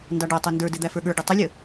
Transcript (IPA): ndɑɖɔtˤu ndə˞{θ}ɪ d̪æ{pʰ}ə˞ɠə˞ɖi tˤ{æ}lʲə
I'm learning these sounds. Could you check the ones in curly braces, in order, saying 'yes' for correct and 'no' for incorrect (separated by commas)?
no, no, no